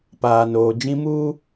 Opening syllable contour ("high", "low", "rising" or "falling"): low